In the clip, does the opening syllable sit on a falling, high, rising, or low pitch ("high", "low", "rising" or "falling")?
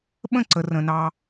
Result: falling